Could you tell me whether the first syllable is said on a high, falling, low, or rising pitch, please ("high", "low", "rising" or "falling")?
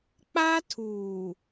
high